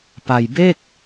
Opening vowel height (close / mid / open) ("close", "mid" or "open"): open